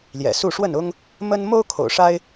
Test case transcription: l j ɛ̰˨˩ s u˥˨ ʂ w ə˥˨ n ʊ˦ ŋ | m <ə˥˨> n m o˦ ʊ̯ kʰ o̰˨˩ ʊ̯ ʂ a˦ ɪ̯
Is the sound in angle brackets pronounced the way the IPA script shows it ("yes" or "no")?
no